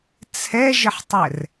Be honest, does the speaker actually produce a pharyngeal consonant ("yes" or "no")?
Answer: yes